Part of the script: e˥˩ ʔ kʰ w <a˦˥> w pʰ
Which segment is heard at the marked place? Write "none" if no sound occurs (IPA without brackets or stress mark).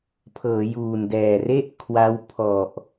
a˦˥